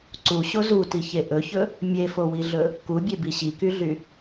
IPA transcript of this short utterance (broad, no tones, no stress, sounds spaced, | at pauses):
ǀ u ɕ o z u t i ç e ʔ ɵ ç ɵ | mʲ e f o w i ɮ ɵ | k u bʲ e b i ɕ i k y ɮ y